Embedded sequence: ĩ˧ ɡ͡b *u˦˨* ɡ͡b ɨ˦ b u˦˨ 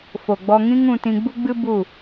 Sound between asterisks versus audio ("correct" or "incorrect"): incorrect